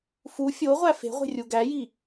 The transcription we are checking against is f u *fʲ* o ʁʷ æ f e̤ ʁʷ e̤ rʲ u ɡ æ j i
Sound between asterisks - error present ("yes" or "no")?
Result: no